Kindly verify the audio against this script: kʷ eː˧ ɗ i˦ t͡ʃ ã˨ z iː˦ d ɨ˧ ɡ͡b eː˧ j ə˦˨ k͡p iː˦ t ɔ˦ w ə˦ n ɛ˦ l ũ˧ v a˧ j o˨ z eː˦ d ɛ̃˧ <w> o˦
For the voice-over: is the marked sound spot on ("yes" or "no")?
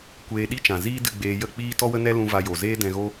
no